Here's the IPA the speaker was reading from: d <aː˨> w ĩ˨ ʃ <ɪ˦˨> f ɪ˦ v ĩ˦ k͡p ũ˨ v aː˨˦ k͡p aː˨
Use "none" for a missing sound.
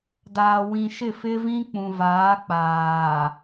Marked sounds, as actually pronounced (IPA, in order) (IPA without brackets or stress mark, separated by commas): aː˨, ɪ˦˨